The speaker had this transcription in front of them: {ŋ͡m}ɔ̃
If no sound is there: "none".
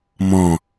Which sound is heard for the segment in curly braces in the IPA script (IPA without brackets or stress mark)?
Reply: m